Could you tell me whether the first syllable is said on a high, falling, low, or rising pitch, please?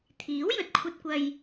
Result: rising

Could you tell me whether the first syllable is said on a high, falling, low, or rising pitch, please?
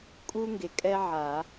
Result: high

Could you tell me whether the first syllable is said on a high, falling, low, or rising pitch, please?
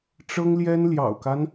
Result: high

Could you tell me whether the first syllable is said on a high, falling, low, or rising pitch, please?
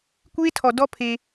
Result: high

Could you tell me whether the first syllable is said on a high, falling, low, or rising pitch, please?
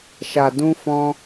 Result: low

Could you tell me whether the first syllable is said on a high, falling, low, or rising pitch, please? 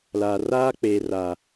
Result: low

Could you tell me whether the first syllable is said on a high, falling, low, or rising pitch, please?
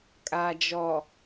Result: low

